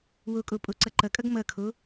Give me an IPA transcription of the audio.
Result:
wokʼo pʼoǀʌǃʌkʼʌɡ mʌkʰo

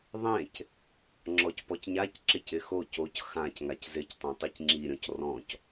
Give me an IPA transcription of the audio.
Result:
ðˤẽc | ŋ͡ǁɔcpɔcɲac ǁɪcɪxo coc xãc ŋaczɪctˤõ tˤicŋ͡ǁiɾʲɔ̃c rɔ̃c

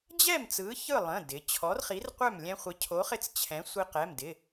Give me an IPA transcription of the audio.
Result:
d͡ʑɛ˥˨m t͡sɯ˨˥çɯ˥˨lˠə̃˩˧˩ dɪ˩˧ t͡ɕʰɔ˨˥rχi˨˥rqʷœ˥˨m lʲɛ̃˦χʷɪ˨˥ cʰo˨˥χɪ˦t͡s t͡ɕʰɛ̃˨˥sʷi˦ qɛ˩˧˩mdɪ˩˧˩

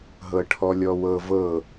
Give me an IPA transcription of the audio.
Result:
ɦɤʈʰɔlʲɔwɤ vɤ

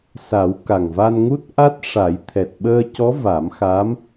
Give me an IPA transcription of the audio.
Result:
sa˨˩˦w ka˨˩ŋva˧nŋu˦˥t̚ ʔa˦˥t̚ʂa˨˩˦j t̪ʰɛ˨˩t̚ɓəː˧cɔ˧˥ va˨˩˦mxa˧˥m

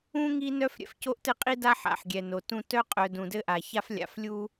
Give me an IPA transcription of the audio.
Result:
ũ˥ ŋi˥ nœ˥fɾʲɛ̰˧f co˥ʔtɘ˥qʼi˥da˥ ħa̰˧ħ ɡʲɛ˧ no˧tũ˥ tœ˥qʼœ˧ dũ˧dɘ˥ ʔa˧ ça˥flʲa̰˧f lʲu˥

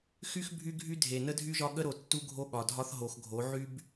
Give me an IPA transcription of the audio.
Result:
xy˦x bʱy˦ɡʱy˦ dʱe˨nə˦dʱy˦ʒɒ˦ ɠə˦ɾo˨ tːu˦ɡʱo˦ɠɒ˨dʱɒ˦θ ɦo˨xɡʱo˨˦ ʕy˦b

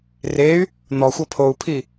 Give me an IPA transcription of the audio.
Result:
rey̯ | n̪ɔxʷɤ pʰou̯pʰi

